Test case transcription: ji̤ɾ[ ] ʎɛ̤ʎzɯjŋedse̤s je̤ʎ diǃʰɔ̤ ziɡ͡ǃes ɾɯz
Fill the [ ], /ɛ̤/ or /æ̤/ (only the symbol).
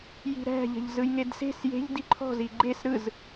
æ̤